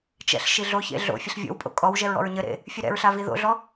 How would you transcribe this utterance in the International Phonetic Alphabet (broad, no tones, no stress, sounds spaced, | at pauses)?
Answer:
t͡ʃ ɛ̰ ɬ ʃ i ɮ o ç ḛ ɮ o̰ fʲ ɘ ɬ vʲ o̰ w pʼ o̰ kʼ ɔ w ʒ ɛ ɹ ɔ̰ ɹ ɲ ɘ ɾ ḛ | fʲ ɨ ɾ ɛ̰ ɹ ɬ a v i ð o̰ ɮ ɔ